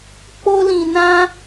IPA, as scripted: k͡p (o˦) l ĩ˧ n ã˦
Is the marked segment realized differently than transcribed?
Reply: no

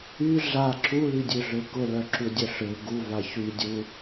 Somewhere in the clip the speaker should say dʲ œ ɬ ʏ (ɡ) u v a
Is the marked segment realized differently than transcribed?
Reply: no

